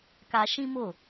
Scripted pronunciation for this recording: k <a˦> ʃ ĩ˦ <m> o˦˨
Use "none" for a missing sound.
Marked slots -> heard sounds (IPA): a˦, m

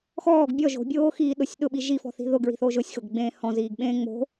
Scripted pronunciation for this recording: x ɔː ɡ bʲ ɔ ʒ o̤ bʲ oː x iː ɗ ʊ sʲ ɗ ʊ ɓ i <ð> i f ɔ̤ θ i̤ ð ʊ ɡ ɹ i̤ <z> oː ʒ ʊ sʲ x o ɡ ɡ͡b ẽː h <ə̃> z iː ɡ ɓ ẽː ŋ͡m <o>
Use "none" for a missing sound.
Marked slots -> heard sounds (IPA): ʒ, θ, ɔ̃, o̤

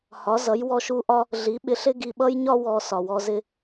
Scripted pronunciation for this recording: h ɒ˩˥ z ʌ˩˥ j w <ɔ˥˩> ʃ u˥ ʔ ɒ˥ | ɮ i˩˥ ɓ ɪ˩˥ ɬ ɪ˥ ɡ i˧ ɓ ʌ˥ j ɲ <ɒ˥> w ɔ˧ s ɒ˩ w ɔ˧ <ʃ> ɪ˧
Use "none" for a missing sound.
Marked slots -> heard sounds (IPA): ɔ˧, ɒ˥, z

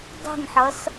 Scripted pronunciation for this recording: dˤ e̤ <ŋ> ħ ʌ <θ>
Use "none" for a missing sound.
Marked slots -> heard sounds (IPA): ŋ, s

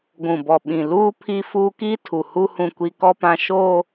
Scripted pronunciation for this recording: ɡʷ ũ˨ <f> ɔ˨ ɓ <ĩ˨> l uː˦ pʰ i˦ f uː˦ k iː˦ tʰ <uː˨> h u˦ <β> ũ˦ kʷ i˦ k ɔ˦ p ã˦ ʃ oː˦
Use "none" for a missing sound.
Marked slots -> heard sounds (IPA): b, ĩ˨, u˨, h

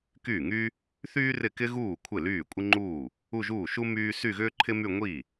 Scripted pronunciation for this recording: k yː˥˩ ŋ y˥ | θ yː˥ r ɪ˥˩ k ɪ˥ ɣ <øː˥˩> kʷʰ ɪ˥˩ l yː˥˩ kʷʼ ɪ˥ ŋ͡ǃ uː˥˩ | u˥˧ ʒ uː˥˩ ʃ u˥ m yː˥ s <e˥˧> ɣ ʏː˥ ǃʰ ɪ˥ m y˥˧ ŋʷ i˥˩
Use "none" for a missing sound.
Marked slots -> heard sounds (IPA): uː˥˩, y˥˧

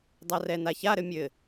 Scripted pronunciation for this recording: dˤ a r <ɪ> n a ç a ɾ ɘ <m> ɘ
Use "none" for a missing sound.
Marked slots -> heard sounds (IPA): ɛ, mʲ

